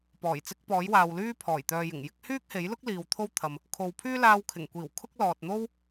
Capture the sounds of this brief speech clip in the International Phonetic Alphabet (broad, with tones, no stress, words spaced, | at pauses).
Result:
pɔː˨˩jt͡sɪ˧k̚ pɔː˨˥jwaː˨wlyː˥ pʰɔː˨˩jt̪œː˨jɪ˨˩ŋjɪ˥k̚ hyː˥k̚he˨˥jlʊ˥k̚ liː˨wt̪ʰo˥wt̪ʰɐ˨m | kʰo˨wpʰyː˥ laː˧wkʰɪ˨˩ŋkʷiː˨˩w kʰʊ˥k̚lɔː˨t̚ n̪o˥w